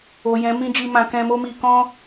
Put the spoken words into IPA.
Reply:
o˨ j ɛ̃˨˦ m ĩ˦ d͡ʒ i˧ m ã˨ k ɛ̃˧ m o˦ m i˧ k ɔ̃˦

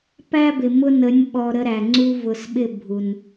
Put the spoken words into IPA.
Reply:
p æ˦ b ɪ˨ m ʊ˧ n ə˨˦ nʲ ɓ ɔ˨ ɾ ə˧ ɾ æ˨ ŋ͡ǀ u˧ v ʊ˨ s ɓ ɪ˦˨ bʱ u˨ n

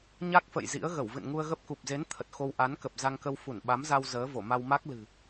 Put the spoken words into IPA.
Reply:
ɲ a˦˥ k̚ f ə̰˧˨ j z ḭ˧˥ ə̯ ɣ ə˧˩ w v ɨ̰˧˨ n ŋ u˧ ə̯ ɣ ə˦˥ p̚ k u˨˩ p̚ z e˨˦ n t̪ʰ ə˨˩ t̚ x o˧ w ʔ a˨˦ n k ə˨˩ p̚ z a˧ ŋ k ə˧ w f u˧˩ n ɓ a˨˦ m z a˧ w z əː˨˦ v o˧˩ m a˧ w m a˦˥ k̚ l ɨ̤˨˩

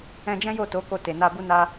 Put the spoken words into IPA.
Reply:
ɛ̃˧ d͡ʒ ɛ̃˦ j o˦˨ t o˨˦ k o˧ t e˨ n a˧ b u˦ n a˦

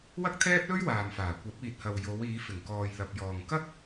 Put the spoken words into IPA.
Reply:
w ɐ˥ k̚ t̪ʰ ɛː˥ p̚ l ɵ˥ ɥ w aː˨ m f aː˨˩ kʷ ɐ˨˥ p̚ iː˨ t̚ h ɐ˨ w j o˨˧ w iː˨˧ f ɪ˨˩ ŋ k ɔː˨ j l ɐ˨ p̚ j ɔː˨ ŋ k ɐ˥ k̚

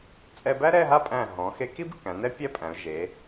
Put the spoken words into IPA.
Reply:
t͡sʼ ɛ˧ b æ˥ ɾ ɛ˥˧ ɦ a˥˧ pʼ æ̃˧˩ ɦ ɔ̃˩˧ x e˧ k i˥ b k æ̃˩˧ n ɛ˥ pʲ ɛ˥ pʼ æ̃˩˧ ʊ̯ ʒ e˩˧

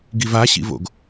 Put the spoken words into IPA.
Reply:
ɡ i v a ɕ ḭ v o̰ ɡ

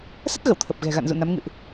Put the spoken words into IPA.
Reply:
s ə˦˥ t̚ ɣ ə˧˩ w t̪ʰ ə˨˩ p̚ ɣ ɛ̤˨˩ ɣ a̰˧˨ n z ṵ˧˨ n a˨˦ m ŋ ɨ̰˧˨ ʔ

